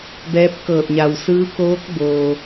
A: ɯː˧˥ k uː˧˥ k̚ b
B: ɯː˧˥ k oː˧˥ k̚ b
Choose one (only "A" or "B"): B